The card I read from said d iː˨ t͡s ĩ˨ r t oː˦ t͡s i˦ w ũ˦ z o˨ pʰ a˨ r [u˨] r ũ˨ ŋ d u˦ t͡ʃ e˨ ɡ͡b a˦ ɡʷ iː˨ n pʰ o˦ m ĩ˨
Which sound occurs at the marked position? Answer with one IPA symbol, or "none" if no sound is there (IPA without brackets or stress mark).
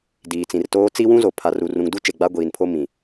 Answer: u˨